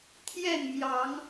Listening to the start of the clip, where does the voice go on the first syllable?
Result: falling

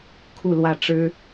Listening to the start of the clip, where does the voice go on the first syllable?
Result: falling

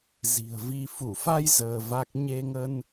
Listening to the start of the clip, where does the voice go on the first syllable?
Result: low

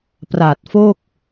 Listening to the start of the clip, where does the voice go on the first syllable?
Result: low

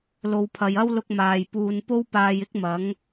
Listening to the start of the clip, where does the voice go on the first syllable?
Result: low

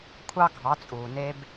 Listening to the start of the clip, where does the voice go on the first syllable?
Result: high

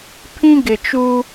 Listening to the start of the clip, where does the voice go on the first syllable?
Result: high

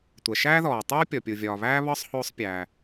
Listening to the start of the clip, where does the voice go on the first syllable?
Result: low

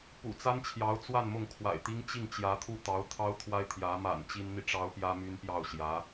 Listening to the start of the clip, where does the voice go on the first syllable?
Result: low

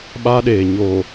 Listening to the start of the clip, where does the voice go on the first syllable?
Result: high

